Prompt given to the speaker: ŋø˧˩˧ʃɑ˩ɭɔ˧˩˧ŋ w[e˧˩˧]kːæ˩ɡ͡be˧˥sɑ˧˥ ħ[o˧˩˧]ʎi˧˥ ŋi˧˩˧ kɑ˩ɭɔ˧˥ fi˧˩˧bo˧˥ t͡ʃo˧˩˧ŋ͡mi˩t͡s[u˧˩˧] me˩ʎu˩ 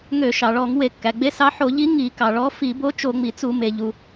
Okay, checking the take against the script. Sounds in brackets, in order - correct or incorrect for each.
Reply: correct, correct, correct

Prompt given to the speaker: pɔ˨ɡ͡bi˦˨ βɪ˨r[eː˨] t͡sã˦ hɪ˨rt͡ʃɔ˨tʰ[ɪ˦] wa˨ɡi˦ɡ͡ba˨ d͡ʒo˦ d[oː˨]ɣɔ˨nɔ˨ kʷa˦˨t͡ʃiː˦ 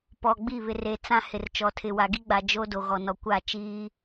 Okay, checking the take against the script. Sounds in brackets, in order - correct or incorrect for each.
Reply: incorrect: e˨, incorrect: ɪ˨, incorrect: o˨

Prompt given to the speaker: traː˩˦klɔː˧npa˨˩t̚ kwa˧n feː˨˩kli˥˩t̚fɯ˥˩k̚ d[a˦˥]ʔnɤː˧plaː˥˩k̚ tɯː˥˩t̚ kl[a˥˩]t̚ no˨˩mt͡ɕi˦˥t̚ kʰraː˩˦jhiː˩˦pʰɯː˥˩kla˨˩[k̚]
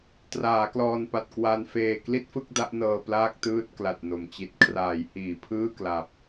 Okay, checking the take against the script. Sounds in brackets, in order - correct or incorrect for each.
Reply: correct, incorrect: a˨˩, incorrect: p̚

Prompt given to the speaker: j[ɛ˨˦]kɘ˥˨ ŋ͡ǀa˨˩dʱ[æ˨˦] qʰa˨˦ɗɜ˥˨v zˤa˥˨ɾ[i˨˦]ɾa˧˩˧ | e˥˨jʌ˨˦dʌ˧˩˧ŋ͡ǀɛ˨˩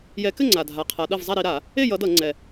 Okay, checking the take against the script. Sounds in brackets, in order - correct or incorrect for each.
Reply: correct, incorrect: a˨˦, correct

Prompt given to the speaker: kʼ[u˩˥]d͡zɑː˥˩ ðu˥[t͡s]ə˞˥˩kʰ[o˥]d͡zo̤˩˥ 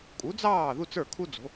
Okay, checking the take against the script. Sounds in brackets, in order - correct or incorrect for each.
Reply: correct, correct, incorrect: u˥

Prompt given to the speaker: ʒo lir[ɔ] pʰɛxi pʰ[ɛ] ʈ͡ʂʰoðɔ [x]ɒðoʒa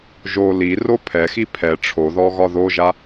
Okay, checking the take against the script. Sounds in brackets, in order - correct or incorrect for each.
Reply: incorrect: o, correct, incorrect: ɣ

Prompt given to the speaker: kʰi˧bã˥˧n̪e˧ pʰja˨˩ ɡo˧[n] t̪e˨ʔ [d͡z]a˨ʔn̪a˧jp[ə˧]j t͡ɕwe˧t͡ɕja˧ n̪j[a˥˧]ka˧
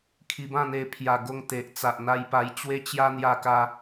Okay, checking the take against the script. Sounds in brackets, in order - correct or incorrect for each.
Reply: incorrect: ŋ, incorrect: t͡s, incorrect: a˧, incorrect: a˧

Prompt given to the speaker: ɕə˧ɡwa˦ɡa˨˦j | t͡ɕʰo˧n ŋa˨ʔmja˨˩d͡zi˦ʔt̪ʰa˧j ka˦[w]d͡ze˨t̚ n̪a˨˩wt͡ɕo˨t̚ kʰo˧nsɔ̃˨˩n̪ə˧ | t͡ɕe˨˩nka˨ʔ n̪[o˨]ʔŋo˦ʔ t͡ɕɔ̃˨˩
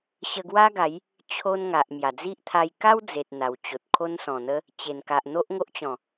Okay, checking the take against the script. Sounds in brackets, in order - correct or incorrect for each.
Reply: correct, incorrect: o˦

